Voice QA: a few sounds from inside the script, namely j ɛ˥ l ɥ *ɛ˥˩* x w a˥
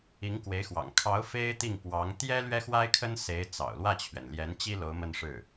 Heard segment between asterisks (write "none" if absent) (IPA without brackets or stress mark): ɛ˥